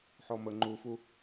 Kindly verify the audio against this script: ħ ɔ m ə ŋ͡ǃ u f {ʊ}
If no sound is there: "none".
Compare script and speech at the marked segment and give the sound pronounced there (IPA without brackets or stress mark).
u